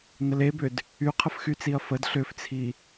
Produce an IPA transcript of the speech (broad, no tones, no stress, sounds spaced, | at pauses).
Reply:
n ə l e b ʏ d | y qʰ ə f x y t͡s i ɐ̯ f ə d ɬ ʏ f t͡sʰ i